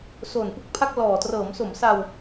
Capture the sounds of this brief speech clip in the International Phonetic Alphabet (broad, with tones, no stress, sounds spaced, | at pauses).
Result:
s o˨˩ n p ɯ˦˥ k̚ pʰ a˥˩ k̚ l ɔː˨˩ t r ɤː˩˦ m s o˩˦ m s a˧ w